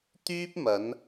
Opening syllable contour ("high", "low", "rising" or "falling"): high